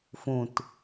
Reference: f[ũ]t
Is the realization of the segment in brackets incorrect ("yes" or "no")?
no